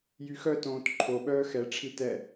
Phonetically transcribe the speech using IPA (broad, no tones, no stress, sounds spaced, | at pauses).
j y x œ t õː t ǃʰ o ɓ œː x ɛ ʈ͡ʂʰ i t ɛ